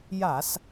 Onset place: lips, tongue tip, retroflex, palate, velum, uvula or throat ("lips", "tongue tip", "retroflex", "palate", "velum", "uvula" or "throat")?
palate